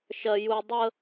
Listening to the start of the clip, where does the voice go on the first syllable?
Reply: high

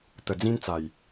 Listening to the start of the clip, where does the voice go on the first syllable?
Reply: low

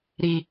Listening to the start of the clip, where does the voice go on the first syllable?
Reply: low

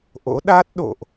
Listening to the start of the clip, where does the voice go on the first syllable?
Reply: rising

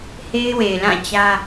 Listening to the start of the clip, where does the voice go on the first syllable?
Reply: high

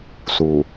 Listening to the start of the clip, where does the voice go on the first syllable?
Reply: low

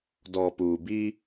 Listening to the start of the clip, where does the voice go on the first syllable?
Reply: low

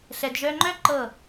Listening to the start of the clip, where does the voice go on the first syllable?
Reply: low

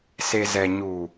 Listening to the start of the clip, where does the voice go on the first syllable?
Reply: low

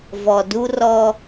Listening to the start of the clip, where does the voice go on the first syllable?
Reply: low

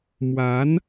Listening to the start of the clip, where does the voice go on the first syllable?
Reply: rising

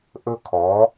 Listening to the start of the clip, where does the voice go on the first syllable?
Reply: high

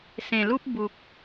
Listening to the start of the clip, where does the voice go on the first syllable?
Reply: low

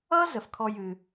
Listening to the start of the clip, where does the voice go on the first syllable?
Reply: high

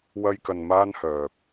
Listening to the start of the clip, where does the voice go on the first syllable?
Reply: high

